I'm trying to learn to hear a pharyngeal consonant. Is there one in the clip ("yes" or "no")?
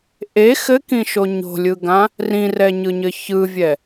no